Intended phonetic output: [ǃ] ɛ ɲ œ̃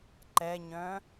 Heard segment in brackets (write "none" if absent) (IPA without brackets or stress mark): ǃ